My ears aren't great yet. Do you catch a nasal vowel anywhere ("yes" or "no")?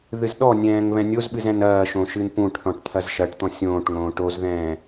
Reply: yes